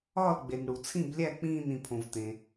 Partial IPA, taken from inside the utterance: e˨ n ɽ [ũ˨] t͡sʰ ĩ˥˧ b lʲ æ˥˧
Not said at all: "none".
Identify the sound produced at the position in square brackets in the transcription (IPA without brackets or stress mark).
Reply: u˨